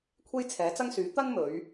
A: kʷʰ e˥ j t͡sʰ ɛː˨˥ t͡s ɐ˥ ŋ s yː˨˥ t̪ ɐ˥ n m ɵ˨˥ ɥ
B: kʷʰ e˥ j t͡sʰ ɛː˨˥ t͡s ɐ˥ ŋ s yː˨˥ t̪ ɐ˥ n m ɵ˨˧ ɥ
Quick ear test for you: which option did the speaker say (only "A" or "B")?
B